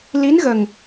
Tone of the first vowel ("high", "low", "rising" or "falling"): rising